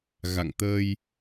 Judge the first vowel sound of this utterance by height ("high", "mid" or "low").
low